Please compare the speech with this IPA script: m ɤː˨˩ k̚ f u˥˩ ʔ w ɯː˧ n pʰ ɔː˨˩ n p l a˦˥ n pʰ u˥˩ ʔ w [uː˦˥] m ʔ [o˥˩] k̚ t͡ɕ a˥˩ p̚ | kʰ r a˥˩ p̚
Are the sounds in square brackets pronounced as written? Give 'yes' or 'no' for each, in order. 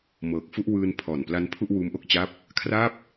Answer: yes, yes

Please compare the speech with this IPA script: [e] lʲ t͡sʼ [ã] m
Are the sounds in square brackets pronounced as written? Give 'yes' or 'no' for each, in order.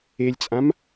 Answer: yes, yes

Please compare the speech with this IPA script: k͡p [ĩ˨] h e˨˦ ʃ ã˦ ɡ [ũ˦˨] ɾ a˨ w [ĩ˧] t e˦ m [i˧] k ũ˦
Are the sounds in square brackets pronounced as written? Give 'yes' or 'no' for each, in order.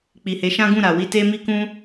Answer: no, yes, no, no

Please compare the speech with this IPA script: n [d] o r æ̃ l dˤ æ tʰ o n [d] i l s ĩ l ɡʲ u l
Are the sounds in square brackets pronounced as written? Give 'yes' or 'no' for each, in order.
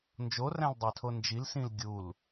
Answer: no, no

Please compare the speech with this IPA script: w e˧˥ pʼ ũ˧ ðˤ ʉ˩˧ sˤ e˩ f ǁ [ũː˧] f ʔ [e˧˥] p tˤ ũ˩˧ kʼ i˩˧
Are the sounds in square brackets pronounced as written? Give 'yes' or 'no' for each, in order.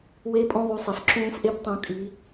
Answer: yes, yes

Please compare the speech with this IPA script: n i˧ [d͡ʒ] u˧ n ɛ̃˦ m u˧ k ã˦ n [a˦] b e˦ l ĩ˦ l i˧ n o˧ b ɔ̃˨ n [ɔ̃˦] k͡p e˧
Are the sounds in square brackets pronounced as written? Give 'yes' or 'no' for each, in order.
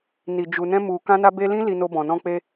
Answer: yes, yes, no

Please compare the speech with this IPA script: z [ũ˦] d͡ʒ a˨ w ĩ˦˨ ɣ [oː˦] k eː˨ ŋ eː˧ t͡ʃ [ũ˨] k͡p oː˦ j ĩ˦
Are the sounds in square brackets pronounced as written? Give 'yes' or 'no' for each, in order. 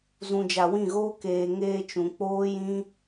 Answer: no, yes, yes

